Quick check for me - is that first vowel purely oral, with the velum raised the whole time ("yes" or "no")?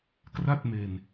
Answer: yes